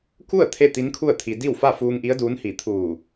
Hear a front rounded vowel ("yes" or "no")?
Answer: no